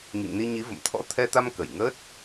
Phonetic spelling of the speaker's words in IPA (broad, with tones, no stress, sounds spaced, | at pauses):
ŋ ḭ˧˨ ŋ n i˧ ɲ i˨˦ v ə̰˧˨ m t̪ʰ ɔ̰˧˥ t̪ʰ ɛ˧ t̪ a˧ m k ə˧˩ j ŋ əː˦˥ t̚